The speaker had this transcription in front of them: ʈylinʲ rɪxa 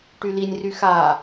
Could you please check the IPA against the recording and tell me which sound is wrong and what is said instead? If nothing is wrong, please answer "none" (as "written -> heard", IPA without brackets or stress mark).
ɪ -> y